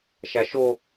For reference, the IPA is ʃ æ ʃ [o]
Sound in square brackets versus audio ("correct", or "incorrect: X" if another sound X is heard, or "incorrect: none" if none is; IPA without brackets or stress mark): correct